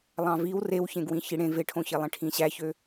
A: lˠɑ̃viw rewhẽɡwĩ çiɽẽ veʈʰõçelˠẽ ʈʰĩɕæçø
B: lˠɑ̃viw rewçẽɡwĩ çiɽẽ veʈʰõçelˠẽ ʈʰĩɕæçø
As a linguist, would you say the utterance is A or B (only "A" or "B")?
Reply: B